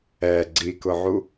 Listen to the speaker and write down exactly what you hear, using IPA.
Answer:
ɛ ɡ͡ǀ i k ʊ ʕ u

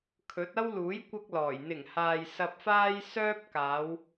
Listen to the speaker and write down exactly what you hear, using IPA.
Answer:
kʰ ɵ˨˥ t̚ ɐ˥ w l uː˨˥ j kʷ ɐ˥ k̚ l ɔː˨˩ j n̪ ɪ˨˩ ŋ h aː˨ j s ɐ˧ p̚ f aː˥ j s œː˥ p̚ k aː˨˧ w

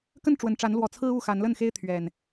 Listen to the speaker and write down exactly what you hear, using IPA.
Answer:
k ə˥˨ n ʈ͡ʂ w ə˨˩ n ʈ͡ʂ a˨˦ n l w ɔ˨˩ t͡sʰ ɹ̩˦ u˥˨ x a˨˦ n l ə˥˨ n x e˦ ɪ̯ t̪ʰ ɥ ɛ˨˩ n

